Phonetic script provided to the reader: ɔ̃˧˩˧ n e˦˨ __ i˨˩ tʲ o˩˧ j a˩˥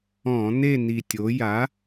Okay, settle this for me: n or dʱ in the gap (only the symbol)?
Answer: n